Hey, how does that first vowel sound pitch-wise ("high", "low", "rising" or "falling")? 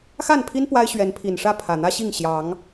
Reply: falling